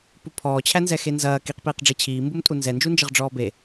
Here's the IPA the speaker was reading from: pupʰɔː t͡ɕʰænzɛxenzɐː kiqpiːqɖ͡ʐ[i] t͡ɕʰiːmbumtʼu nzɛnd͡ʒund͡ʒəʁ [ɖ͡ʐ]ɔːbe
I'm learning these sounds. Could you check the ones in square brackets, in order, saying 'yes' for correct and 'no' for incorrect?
yes, yes

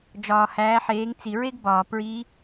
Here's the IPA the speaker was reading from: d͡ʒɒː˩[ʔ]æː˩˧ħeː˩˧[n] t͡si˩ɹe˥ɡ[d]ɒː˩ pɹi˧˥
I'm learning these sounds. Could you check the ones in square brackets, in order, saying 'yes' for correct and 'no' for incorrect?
no, no, no

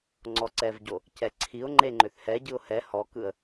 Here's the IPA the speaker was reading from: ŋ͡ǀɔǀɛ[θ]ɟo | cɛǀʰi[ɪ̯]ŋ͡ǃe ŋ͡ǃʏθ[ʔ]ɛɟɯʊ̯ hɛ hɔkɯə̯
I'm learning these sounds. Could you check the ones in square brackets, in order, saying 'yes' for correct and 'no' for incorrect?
no, no, no

